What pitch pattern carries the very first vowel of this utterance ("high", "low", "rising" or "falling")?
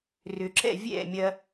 low